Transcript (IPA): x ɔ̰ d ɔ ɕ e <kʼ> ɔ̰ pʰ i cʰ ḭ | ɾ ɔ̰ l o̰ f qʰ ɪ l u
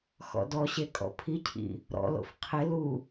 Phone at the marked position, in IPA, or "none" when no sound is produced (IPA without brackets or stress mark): kʼ